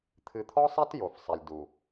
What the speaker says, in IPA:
t̪ʰ ɨ˨ t̪ʰ ɔ˦ sˤ ɛ˦ t j o˨ f sˤ ɛ˨ lʲ d u˨

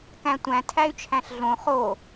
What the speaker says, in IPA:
k æ̃ tʷ æ̃ tʰ æ y̯ t͡ʃʰ æ̃ ɬ ɮ õ χ o

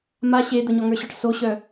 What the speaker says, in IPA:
m a ɕ e d̪ ə ɲ ɔ ŋ ə˞ ɕ ɔ ʈ s o ɕ œ

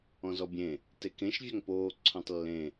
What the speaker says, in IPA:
ɔ̃ z ɔ bʲ ẽ | t e k ẽ ʃ vʲ a ŋ p oː ǀʰ õ tˤ lː ẽ

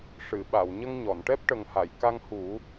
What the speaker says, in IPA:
ʂ ɨ˨˩˨ ɓ a˨˩˨ w ɲ ə˧ ŋ ɲ ɔ˨˩˨ n ʈ ɛ˦˥ p̚ ʈ ə˨˩ ŋ h a˨˩˨ j k a˧ ŋ h u˨˩˦

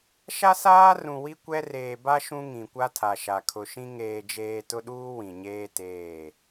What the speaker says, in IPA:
ʃ a˦ s aː˦ r ũ˨ w i˦ kʷ ɛ˦ r eː˨ b a˦ ʃ ũ˦ ŋ ĩ˨ kʷ a˦ tʰ a˨ ʃ a˨ kʰ ʊ˨ ʃ ĩ˦ ŋ eː˨ d͡ʒ eː˨ t ʊ˦ ɗ uː˦ w ĩ˨ ɲ eː˦ t eː˦˨

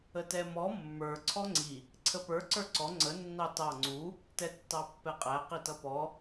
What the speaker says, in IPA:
ə t ɛ m ɔ mː ə˞ ǀʰ ɔ ŋ͡ǀ i | ǀʰ ə p ə˞ ǀ ə˞ ǀ ɔ ŋ͡ǀ ə nː ɑ t ɑ ŋ͡ǀ u | t ɛ tː ɑ pː ɛ qʼ æ q i t ʌ p ɔ

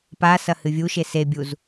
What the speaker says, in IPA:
p a s ɐ h ɨ vʲ u ʃ e s e bʲ u z

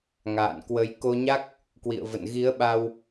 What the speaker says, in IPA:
ŋ a̰ː˧˨ n k w ə˨˦ j k o˧ ɲ a˦˥ k̚ | k w ḭ˧˨ ə̯ v ə̰˧˨ n ɣ i˨˦ ə̯ ɓ a˧ w

